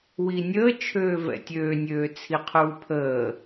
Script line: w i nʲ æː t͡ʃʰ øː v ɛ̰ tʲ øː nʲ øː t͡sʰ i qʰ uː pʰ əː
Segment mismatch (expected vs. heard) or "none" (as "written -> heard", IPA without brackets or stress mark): æː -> əː